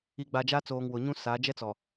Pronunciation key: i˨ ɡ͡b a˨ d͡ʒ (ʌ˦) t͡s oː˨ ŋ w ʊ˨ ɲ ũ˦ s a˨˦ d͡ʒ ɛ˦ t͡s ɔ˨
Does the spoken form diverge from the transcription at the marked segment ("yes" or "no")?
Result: yes